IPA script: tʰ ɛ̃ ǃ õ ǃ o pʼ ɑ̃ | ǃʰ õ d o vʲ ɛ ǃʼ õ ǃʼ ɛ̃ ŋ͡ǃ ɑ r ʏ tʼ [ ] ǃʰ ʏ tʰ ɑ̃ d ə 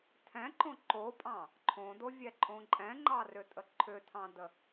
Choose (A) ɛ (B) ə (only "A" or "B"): B